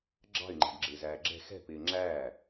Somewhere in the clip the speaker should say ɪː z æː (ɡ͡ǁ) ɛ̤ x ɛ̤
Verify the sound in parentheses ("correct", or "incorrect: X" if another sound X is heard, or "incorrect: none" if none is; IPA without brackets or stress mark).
correct